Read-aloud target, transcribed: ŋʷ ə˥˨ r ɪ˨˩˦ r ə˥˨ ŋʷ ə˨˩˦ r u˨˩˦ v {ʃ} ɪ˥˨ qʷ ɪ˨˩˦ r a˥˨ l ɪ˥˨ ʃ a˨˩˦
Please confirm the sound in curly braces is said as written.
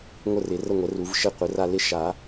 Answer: yes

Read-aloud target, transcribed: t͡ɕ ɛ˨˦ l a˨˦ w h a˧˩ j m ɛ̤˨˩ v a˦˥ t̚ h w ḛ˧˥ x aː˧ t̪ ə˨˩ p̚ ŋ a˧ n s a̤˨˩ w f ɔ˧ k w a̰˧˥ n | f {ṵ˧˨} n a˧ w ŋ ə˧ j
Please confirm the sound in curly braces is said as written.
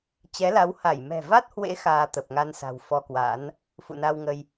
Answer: yes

